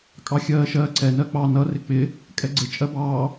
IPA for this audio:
kʼ ɑ xʲ ɜː ʃ ɜː ǀ ɛ n ɜ k͡p ɑ n ʌ r ɪ k͡p ɪ | kʼ ɛ ɡ͡ǀ ɪ t͡ʃʼ ɜ b ɑː

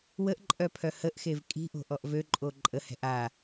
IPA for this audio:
w ə ʔ ǃʼ œ pʰ œ h ə ʔ x e v kʼ i̤ ʔ o̤ ʔ ɔ ʔ v ø ǃʼ o ǃʼ ə h ɛ̤ ʔ a

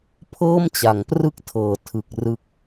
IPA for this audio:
pʰ ɤː˥˩ m t͡ɕ a˩˦ ŋ p r ɯ˥˩ k̚ tʰ ɤː˩˦ tʰ ɯ˨˩ k̚ r ɯ˦˥ k̚

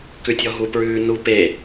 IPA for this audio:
k ʉ tʲ ɔ ɦ u p ɹ ʉː n u p e

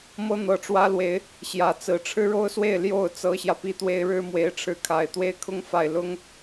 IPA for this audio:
m ɤ˥ n̪ ɤ˨˩ ʈ͡ʂ w ä˥ l w e˧˥ ɪ̯ | ɕ j ä˨˩ t͡s ɹ̩˧˥ ʈ͡ʂʰ ɻ̩˥ ɻ o˥ ʊ̯ s w e˥˧ ɪ̯ l j o˥˩ ʊ̯ t͡s ɤ˥ ɕ j ä˨ p i˥ t̪ w e˥ ɪ̯ ɻ ɻ̩˥ m w e˧˥ ɪ̯ ʈ͡ʂʰ ɻ̩˧˥ kʰ a˨˩ ɪ̯ t̪ w e˥˩ ɪ̯ kʰ ʊ˥ ŋ f a˨˩ ɪ̯ l ʊ˥ ŋ

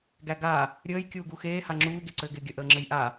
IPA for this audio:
ɡ æ ɡ a | ɾʲ əː j kʲ uː ɡ u x eː h a ŋ͡ǁ uː ɡ e ǀ ɘː ɡ ɪː ɡʲ ə ʔ əː ŋ͡ǁ ɘ j ʔ a

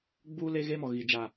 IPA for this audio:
ɡ͡b uː˦ l e˦ ɣ e˦ m ɔ˨ ɣ i˨ d͡ʒ a˨

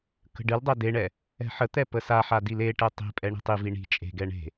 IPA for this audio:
k ə̤ ɖ ɨ l dˤ ɛ d e ɳ ɛ | ɛ̤ ħ ə t̪ ɛ p ə s a ħ a d i l e ʈ ɛ tˤ i̤ pʼ ɛ ɳ i̤ tˤ i v i ɳ i̤ t͡ʃʼ e̤ ɡ ɛ ɳ e̤

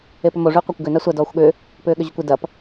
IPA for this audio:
e p ʏ m o ʐ y qʷ ɐ kʷ ɡ ʏ n a sʷ ɐ d ɔː xʷ ɠ ʏː | p ʏː ɠ ʏ ʑ ʏ kʷ ɪ d ɐ p

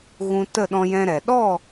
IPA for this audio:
ɣ ũ˧ t ə˦˨ ɗ ɔ̃˧ j ɛ̃˧ ɾ ɛ˨ ɗ ɔ˦˨

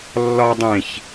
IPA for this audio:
lː ɒ dˤ ẽ ç

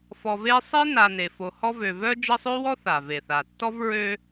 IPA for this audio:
f ɔ˨ v e˦ sˤ e˥ n a˨ n e˩ f o˨ h ɔ˦ v ø˨ v œ˥ d͡ʒ ə˦ sˤ ø˥ w ɔ˥ θ a˩ v e˩ θ a˩ tː ɔ˥ v ɹ ø˦

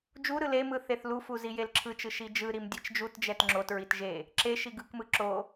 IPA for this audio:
d͡ʒ u ɾ ɯ l e m ɯ θ e θ l u f u z i j e l ǁʰ ɯ t͡ʃ ɯ ʃ i d͡ʒ ɯ ɾ i m dʲ e t͡ʃ d͡ʒ u t d͡ʒ ɛ t ŋ͡ǁ o t ɹ i t ʒ e | ǁ e ʃ i ɡ ɯ k m ɯ ǁ o

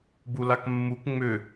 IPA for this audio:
b u l a k mː u k ŋ͡m ʏ

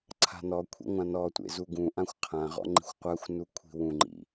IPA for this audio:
ǀʰ a̤ n ɔ kʷʰ ḭ ŋʷ ã n ɔ tʷ ḛ z u ɡ ũ ʔ ã xʷ qʰ ã ʁ ɔ̰ ŋ͡ǃ i̤ xʷ qʷ a xʷ n u kʷʰ i̤ w ũ ŋ͡ǃ ḭ

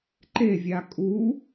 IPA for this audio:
ǃ e vʲ a kʼ u

